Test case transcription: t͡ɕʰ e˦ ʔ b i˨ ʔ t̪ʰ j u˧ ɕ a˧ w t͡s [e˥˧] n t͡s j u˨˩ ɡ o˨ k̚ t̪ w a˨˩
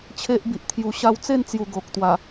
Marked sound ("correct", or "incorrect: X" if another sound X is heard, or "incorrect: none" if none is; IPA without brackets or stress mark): correct